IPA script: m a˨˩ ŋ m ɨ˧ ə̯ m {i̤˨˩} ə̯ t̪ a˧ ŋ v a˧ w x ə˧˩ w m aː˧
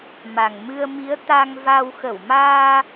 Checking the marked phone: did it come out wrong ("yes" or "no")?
yes